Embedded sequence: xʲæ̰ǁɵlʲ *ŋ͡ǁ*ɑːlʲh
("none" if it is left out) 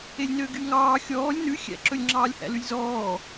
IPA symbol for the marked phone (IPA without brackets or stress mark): ŋ͡ǁ